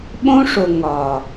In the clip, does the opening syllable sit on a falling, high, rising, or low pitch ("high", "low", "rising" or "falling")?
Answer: high